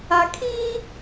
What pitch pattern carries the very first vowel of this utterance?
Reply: low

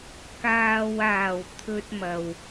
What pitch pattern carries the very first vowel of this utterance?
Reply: low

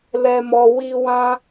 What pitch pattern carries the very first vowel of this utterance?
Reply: low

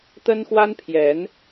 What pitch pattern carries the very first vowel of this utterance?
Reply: high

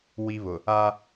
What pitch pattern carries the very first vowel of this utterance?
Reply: high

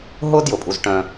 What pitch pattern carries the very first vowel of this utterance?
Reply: high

